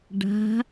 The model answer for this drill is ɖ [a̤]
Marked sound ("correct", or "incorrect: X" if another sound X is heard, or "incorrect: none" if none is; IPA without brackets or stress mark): correct